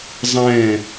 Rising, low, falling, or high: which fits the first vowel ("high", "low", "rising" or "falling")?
falling